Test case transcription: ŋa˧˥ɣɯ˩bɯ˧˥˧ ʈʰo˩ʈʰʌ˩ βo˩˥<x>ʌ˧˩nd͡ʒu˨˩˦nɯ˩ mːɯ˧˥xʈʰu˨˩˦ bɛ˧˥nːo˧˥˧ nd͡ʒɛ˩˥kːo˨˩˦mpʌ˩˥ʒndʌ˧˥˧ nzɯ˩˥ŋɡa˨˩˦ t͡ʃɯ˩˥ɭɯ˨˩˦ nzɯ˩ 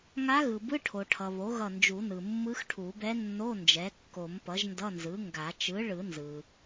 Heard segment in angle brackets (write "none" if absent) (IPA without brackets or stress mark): ɣ